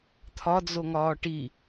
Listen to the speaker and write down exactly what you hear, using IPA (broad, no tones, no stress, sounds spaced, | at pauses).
t̪ʰ ɒ d͡z o ŋ ɒː ʈ i